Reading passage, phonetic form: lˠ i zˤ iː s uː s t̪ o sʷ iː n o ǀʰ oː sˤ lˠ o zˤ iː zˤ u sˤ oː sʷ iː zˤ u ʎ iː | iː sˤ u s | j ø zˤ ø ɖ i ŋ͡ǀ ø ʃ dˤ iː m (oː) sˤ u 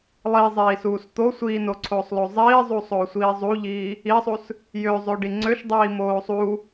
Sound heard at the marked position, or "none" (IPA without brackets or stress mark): oː